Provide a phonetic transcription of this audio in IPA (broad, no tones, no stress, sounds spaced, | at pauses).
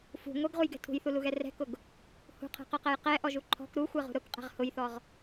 f ṳ ŋʷ ɛ ɡ ʁ u j ɡ ɛ̤ tʰ ṳ j θ u l u ɣ ɛ r ɛ̤ k ʊ ɡ | h ṳ qʰ ɛ̤ q ʊ q ɛ j q ɛ ʔ ɔ ʒ u ǃʰ ɔ̤ k ɾ u xʷ ɛ ʁ ṳ ɾ ʊ k qʼ ɛ̤ ʁ h ʊ j θ ɔ ʁ